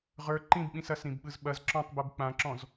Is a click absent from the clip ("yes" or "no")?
no